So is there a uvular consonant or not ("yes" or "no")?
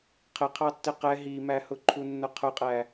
yes